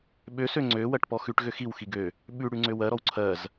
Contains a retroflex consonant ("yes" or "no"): yes